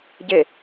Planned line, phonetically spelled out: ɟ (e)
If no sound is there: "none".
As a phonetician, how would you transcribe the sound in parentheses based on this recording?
e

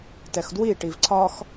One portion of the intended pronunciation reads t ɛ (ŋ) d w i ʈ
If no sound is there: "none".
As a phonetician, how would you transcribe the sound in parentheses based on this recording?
x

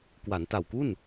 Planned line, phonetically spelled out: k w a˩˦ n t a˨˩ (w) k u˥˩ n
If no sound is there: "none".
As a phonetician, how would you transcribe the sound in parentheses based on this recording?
w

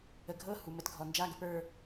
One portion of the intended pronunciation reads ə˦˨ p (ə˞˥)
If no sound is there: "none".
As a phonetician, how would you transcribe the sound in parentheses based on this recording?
ə˞˦˨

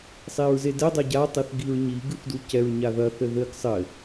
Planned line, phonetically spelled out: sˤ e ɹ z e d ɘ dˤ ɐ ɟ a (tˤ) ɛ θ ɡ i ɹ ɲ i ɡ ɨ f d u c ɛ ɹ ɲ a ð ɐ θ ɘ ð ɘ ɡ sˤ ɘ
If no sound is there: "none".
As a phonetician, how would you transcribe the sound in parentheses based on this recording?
tˤ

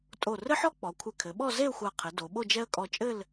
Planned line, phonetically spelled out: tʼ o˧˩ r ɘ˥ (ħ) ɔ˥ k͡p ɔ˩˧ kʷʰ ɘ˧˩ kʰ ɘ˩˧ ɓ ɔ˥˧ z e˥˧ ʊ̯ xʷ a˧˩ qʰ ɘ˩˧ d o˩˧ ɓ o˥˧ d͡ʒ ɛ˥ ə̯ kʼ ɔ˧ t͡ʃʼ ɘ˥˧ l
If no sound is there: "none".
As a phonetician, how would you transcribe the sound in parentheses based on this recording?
ħ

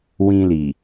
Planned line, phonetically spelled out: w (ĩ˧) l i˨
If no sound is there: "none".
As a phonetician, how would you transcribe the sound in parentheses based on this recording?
ĩ˧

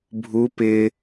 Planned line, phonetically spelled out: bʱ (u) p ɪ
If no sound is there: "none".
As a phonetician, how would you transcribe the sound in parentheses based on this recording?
u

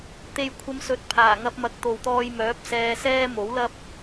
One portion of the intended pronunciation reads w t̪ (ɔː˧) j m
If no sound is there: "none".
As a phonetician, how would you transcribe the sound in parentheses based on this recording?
ɔː˧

